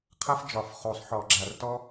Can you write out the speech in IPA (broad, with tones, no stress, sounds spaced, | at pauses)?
qʰ ɐ˥ f d͡ʒ ɒ˧˩˧ f χ o˧˩˧ sˤ ħ ɔ˧˩˧ ɡ͡ǁ a˧˩˧ r t ɔ˥